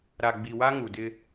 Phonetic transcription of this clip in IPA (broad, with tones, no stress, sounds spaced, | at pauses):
ɾ a˨ ɡ͡b i˨ w a˦ ŋ u˨ d ɪ˦